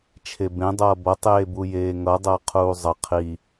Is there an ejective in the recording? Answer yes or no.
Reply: no